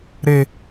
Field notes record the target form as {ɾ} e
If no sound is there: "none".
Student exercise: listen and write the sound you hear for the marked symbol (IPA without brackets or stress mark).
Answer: ɾ